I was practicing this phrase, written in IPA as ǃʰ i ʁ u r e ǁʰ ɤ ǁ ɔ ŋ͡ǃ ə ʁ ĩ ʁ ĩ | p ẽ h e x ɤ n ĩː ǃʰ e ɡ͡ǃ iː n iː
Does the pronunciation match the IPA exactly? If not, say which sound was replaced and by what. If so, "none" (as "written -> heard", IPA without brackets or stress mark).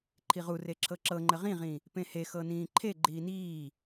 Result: ɔ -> ɤ